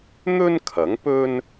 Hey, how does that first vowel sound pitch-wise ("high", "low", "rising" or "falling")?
high